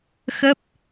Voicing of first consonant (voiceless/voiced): voiceless